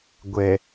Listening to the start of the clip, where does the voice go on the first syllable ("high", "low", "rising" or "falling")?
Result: low